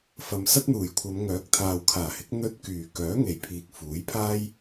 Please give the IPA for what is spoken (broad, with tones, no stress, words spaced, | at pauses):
fɐ˨msɐ˥t̚n̪uː˨˩jkʷʰɐ˨˧m ŋœː˨˥k̚t̪ʰaː˨wkʰaː˨˩hɪ˨˥k̚ n̪ɵ˧t̚ kyː˨˩ kœː˨˥ŋe˨˩jpʰiː˨k̚ fuː˨˥jpʰaː˥j